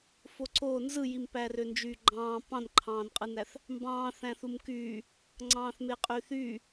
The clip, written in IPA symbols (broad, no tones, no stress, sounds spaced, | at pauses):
f o ǀ o n z ɯ j i m p æ r ø n d͡ʒ yː ɡ͡ǃ ɑ̃ː p ɑ̃ n ǃʰ ɑ̃ː n qʼ ɯ n æ θ | m b ɑ̃ː θ æ̃ θ u m k yː | ŋ͡ǀ ɑ̃ː θ m e qʼ yː θ yː